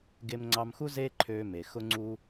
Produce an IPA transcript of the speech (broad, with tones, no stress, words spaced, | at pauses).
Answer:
ɡe˧mŋ͡ǀɑ˧mxu˦ ze˦ǃʰø˧ me˨ xʊ˦ŋ͡ǀu˦